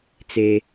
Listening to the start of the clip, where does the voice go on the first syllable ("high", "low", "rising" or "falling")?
high